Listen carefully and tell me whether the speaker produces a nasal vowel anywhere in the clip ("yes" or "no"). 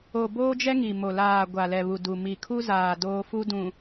yes